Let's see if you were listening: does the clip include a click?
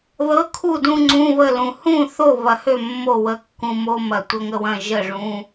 yes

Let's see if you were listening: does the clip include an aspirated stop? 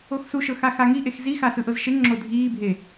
no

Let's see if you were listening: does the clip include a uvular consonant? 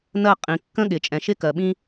yes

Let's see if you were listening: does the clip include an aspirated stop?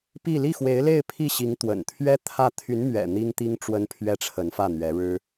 yes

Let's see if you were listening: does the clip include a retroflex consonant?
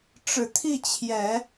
yes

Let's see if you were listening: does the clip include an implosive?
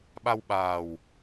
yes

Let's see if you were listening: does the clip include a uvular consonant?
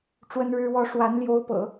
no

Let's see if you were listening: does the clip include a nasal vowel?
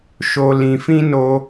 yes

